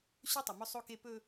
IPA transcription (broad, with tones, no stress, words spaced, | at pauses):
ɕɵ˦ tˤɪ˨mɵ˦sˤo˦ke˦ pɵ˦